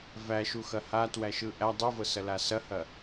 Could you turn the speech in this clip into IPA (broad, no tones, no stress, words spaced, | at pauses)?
væʃuxɐ hatwæʃɯ ʔæ dˤɯvɤsɐla sɐhɐ